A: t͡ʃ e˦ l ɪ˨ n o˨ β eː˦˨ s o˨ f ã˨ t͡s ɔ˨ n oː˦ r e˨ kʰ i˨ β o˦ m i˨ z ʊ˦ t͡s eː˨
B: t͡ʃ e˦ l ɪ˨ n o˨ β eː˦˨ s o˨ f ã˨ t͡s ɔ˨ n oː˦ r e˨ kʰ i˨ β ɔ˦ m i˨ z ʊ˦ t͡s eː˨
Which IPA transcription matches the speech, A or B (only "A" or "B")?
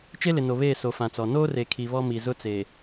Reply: B